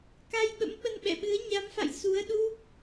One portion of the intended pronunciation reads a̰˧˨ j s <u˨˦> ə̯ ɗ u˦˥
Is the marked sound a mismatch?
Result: no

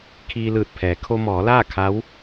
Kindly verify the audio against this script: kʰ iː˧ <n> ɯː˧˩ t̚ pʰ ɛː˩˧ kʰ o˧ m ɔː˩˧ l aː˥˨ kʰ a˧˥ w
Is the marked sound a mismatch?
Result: yes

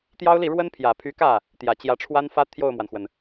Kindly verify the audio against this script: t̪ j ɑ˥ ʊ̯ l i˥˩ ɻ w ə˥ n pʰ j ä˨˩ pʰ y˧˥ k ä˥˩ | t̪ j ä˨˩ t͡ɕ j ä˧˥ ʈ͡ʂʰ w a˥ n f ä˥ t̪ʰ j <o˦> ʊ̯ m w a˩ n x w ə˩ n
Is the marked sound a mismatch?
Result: yes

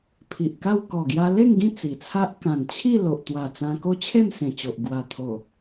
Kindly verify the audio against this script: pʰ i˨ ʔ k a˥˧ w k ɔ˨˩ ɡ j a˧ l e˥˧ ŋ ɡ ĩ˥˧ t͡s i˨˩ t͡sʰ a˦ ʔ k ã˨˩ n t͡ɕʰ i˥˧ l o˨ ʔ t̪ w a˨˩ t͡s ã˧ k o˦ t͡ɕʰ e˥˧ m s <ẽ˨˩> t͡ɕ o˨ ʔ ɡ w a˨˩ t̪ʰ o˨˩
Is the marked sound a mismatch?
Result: no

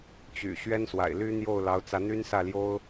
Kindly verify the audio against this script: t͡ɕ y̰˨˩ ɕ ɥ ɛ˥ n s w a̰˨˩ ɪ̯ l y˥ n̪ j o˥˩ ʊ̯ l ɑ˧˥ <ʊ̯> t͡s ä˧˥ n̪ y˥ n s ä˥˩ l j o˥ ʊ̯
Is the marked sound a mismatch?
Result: no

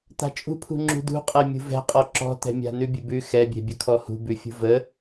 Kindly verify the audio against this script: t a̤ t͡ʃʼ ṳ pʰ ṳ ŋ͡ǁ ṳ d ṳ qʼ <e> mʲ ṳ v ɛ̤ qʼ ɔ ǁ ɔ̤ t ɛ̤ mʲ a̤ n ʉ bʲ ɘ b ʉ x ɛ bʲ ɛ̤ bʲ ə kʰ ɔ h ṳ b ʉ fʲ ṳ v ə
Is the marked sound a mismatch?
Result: yes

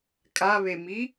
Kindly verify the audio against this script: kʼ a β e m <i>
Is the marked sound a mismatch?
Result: no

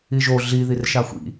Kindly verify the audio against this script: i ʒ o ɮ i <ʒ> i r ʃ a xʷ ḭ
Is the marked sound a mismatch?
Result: yes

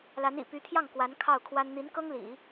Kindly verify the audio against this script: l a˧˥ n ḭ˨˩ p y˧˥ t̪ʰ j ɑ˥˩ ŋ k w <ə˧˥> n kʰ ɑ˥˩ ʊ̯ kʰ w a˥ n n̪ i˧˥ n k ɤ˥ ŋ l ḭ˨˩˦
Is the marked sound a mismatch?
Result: yes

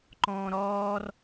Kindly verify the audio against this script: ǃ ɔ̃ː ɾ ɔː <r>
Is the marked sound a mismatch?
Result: no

